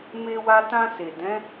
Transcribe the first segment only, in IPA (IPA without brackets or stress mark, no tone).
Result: m